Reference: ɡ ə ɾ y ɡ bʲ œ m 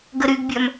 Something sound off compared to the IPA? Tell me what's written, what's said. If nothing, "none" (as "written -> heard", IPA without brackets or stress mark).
none